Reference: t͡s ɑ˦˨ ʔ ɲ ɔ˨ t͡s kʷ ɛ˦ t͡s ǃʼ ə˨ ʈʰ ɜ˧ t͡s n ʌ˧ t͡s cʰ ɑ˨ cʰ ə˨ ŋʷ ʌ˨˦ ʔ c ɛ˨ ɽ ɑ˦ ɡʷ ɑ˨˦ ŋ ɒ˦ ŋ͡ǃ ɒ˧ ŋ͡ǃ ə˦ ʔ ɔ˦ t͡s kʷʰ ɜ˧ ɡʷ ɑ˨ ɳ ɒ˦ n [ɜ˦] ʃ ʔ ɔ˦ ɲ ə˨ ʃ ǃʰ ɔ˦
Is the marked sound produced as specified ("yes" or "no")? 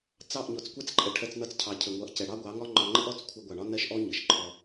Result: yes